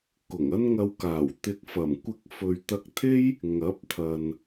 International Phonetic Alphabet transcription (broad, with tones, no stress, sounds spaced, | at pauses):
k ʊ˨˩ ŋ ɐ˥ n ŋ ɐ˧ w k aː˨˩ w t̪ ɪ˧ k̚ f ɐ˨˩ m kʷ ɪ˧ k̚ f ɵ˨ ɥ t̪ ɐ˧ k̚ t̪ʰ e˥ j | ŋ ɐ˨˥ p̚ t̪ʰ ɐ˨ n